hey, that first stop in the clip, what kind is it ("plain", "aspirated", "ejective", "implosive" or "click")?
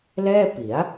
plain